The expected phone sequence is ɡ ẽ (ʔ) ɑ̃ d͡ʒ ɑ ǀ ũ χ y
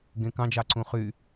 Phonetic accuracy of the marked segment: incorrect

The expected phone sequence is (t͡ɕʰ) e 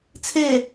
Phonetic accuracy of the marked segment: incorrect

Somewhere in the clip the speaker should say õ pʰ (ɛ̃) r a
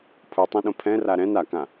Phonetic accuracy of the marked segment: correct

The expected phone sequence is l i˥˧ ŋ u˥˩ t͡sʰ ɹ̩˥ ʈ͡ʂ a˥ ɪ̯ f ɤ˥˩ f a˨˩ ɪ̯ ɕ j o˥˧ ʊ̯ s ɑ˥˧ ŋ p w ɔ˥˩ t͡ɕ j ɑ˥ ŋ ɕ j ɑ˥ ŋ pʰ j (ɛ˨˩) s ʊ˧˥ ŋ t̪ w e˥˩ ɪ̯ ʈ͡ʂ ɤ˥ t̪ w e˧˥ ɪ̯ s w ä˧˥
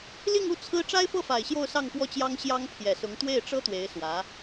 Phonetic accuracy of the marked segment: correct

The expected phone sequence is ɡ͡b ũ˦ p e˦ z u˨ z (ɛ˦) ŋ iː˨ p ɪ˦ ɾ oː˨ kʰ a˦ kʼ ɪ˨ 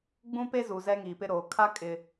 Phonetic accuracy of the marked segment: correct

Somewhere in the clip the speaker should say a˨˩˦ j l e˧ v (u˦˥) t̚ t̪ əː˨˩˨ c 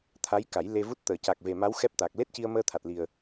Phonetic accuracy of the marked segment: correct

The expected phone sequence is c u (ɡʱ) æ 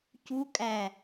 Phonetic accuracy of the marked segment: incorrect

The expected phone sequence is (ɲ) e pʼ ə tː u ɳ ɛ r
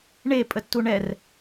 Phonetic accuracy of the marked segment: incorrect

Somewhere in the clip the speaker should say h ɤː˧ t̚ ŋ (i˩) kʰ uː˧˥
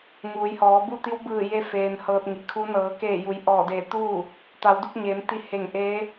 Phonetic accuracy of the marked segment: correct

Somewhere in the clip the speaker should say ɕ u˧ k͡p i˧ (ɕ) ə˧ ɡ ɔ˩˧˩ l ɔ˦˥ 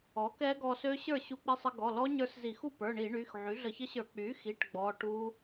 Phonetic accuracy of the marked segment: incorrect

